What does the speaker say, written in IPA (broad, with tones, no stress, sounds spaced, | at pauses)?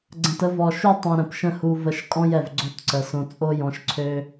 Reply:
ɡ͡ǀ ə̃˨ t ə˧ v ɔ˨ ʃ u˦ tˤ õ˧ ɾ ə̃˨ p ʃ ə̃˦ h u˧ v ə˧ ʃ kʼ ɔ̃˦ j ɛ˨ v ɡ͡ǀ o˦ t ǀ ə˨ s õ˧ t͡sʼ o˦ j ɔ̃˧ ʃ ǀʰ ø˦